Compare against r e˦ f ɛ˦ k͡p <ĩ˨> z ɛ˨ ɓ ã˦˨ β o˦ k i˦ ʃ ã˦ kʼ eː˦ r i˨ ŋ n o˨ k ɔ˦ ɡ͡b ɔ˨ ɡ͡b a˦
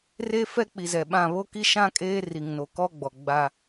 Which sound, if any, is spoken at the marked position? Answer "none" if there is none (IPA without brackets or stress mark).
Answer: i˨